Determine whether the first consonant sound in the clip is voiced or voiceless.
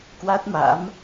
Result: voiceless